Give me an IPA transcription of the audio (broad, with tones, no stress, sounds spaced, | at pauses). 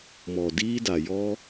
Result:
m ɔ˨ d iː˦ d a˨ j ɔ˦